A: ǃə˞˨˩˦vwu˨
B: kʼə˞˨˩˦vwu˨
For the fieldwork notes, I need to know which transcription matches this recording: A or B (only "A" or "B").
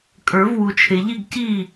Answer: B